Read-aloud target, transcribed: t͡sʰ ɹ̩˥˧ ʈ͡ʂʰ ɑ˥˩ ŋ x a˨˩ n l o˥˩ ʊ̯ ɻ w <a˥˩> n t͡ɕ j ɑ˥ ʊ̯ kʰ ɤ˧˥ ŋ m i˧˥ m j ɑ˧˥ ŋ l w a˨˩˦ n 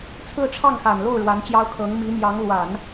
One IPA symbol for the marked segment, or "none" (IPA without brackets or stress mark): a˧˥